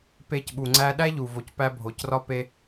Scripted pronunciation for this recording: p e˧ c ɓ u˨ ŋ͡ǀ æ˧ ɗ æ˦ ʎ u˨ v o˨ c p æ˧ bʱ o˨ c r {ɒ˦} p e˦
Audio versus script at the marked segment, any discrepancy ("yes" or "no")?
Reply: no